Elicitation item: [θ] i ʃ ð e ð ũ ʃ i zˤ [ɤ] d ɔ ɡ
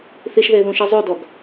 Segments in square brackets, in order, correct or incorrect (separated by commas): correct, incorrect